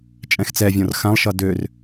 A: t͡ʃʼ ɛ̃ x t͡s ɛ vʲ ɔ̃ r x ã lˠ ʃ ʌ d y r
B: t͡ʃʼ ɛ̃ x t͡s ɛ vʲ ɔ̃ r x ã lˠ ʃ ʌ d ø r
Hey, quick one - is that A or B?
B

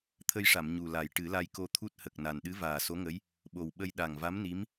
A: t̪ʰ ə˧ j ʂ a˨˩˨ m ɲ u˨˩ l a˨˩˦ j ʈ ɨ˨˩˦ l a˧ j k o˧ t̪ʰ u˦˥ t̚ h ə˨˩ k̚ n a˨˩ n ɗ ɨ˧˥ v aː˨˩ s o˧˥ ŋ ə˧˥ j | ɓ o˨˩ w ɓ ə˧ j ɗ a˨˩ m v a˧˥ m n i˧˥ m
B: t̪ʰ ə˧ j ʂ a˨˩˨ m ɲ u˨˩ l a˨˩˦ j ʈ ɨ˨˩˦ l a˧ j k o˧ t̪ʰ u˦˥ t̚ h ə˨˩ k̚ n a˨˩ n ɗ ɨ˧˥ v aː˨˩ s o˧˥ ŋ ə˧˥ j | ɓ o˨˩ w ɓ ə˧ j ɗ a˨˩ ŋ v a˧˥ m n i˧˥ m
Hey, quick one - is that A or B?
B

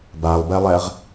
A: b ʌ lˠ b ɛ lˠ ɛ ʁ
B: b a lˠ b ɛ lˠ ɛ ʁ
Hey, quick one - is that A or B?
B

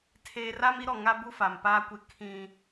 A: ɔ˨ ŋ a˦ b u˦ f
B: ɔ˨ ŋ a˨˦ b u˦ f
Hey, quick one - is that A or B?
A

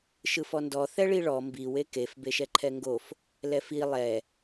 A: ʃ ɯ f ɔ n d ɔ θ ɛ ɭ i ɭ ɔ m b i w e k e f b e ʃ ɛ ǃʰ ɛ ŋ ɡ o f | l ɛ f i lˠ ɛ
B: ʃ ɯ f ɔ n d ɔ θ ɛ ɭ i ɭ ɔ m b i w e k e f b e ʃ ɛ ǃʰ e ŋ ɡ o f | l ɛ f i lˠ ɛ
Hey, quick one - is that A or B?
A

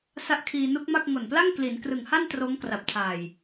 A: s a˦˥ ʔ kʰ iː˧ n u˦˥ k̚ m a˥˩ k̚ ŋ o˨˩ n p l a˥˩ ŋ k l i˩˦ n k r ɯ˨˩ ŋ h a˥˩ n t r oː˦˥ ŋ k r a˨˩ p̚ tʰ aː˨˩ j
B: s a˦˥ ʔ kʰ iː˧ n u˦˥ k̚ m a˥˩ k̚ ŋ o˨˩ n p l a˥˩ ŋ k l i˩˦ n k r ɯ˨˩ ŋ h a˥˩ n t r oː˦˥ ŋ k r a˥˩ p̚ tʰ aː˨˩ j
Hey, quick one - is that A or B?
A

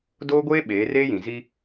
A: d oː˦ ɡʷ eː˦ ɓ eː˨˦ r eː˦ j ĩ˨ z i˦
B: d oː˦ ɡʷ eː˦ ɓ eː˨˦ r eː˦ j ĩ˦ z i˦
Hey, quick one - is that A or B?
A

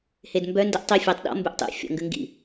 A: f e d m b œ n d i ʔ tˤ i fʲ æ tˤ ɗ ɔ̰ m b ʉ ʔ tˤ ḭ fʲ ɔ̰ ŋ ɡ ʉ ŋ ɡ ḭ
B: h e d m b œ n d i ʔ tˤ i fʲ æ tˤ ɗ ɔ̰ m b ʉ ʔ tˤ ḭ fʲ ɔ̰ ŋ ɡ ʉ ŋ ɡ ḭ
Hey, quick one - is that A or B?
B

